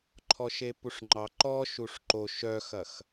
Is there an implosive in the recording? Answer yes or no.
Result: no